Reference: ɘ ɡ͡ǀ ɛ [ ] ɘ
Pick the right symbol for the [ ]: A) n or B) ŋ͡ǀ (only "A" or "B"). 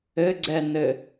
A